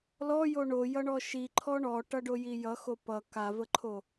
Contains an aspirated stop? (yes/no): yes